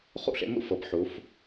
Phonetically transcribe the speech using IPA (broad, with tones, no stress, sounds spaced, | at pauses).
χ ṵ˥˧ ɬ ḛ˧ m ṵ˥˧ f ɤ˩˧ p ħ u˩˧ f